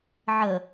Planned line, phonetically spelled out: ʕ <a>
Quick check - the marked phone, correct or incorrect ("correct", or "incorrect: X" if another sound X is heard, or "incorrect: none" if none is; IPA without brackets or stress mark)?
incorrect: ə